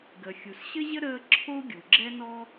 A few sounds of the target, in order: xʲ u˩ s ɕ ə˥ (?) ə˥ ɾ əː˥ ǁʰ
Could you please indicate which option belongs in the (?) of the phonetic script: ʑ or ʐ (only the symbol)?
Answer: ʑ